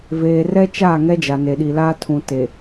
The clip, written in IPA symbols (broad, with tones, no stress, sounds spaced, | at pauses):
v eː˨ r ɛ˦ t͡ʃ aː˦˨ ŋ ɛ˦ d͡ʒ a˨ n e˨ ɗ i˨ l aː˦ tʰ ũ˨ t e˨